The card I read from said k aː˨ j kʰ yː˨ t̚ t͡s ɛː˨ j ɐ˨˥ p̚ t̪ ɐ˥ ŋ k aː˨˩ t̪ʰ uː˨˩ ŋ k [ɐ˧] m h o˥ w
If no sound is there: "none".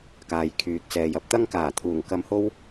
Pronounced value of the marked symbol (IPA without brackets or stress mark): ɐ˧